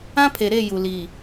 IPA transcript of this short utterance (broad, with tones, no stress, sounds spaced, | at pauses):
ã˦ pʰ e˨ ɾ e˦˨ j u˨ l iː˨